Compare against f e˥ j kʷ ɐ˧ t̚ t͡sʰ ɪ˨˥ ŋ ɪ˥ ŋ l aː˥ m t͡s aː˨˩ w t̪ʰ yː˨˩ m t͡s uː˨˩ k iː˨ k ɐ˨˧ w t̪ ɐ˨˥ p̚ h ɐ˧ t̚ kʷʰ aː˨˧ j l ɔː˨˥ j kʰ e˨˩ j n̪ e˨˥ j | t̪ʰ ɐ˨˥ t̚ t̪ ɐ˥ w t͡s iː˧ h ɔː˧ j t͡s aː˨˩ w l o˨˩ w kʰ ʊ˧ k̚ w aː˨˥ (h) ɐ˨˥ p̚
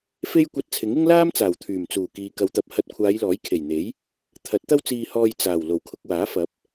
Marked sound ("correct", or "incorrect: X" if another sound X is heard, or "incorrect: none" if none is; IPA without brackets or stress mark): incorrect: f